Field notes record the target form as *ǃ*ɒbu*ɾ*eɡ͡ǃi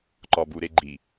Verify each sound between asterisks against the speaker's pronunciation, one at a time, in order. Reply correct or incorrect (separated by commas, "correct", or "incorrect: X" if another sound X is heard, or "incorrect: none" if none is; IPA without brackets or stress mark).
correct, correct